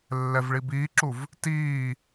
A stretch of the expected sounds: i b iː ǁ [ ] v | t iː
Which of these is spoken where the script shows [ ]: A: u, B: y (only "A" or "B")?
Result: A